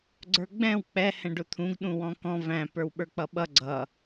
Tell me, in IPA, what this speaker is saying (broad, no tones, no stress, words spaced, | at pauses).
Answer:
ɡ͡ǀə˞ɡ͡bɛ̃w k͡pɛ hɛ̃ɖʊt̪ʰũɡ ɗũwɔ̃kɔ̃ væ̃ pə˞wɓə˞k͡pʌɓʌ ɡ͡ǀʌ